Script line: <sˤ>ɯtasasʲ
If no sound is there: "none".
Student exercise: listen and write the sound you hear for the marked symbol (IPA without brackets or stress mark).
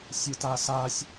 sʲ